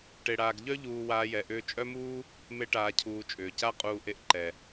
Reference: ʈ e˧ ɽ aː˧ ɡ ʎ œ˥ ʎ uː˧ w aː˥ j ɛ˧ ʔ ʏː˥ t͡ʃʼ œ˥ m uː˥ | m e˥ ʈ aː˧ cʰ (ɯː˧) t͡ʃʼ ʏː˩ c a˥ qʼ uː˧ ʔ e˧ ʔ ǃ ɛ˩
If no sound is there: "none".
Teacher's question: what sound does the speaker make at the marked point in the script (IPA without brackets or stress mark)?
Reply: uː˧